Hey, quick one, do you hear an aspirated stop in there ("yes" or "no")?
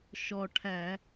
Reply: yes